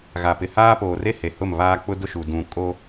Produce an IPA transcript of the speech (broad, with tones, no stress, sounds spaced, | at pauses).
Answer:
ɣ a˨ p ɪ˨ h aː˦ p oː˨ r e˦ h e˨ h ʊ˦˨ m β aː˦ k͡p ʊ˦ d ʊ˦ ʃ u˨ d ũ˨ kʼ o˦